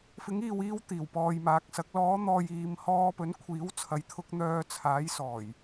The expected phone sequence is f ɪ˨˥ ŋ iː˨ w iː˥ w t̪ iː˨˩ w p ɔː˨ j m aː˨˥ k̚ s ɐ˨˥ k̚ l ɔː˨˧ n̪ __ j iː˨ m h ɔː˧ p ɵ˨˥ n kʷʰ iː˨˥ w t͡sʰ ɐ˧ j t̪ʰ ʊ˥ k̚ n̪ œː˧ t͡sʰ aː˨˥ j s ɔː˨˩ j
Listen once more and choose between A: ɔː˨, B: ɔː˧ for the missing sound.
A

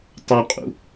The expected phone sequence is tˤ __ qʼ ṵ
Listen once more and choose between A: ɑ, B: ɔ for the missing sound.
A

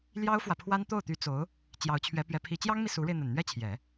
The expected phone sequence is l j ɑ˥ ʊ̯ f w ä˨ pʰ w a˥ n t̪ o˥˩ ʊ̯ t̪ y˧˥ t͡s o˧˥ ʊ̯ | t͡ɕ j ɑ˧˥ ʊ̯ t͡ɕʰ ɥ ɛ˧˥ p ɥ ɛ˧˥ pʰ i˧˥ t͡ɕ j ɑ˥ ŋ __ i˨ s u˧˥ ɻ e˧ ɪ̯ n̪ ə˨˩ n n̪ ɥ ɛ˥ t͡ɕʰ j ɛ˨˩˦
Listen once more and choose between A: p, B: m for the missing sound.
B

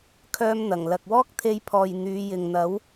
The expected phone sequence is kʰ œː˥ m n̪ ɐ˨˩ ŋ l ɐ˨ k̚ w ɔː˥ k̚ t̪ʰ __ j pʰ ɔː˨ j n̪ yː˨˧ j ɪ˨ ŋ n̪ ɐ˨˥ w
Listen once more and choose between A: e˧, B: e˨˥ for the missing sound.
A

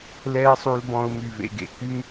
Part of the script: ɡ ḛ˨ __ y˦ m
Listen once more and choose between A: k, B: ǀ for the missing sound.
A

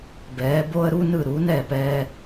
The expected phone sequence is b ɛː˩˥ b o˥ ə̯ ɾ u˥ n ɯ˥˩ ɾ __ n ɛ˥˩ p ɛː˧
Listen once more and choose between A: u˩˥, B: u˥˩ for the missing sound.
A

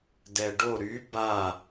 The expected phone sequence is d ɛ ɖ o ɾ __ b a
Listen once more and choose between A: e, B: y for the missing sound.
B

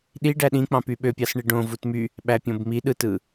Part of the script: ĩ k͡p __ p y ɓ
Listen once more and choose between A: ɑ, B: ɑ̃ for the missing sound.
B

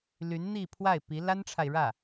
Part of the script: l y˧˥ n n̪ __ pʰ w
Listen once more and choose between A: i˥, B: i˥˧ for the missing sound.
B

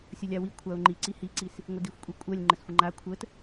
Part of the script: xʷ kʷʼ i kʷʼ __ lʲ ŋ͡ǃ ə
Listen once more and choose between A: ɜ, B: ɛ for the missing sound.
A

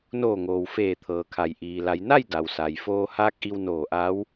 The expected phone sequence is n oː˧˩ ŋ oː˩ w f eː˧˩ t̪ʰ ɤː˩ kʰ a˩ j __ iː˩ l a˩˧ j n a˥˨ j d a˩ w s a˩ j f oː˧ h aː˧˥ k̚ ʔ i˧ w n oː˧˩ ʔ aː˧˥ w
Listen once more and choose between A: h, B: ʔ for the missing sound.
B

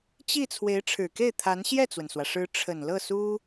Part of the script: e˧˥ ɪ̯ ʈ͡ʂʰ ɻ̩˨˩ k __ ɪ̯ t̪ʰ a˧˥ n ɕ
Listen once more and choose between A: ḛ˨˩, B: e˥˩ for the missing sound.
B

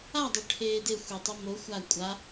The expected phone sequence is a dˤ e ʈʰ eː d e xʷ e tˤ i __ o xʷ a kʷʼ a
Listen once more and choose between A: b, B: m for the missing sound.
B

